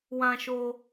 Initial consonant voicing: voiced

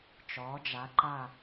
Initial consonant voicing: voiceless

